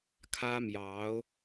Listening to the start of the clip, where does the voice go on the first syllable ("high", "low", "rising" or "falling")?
high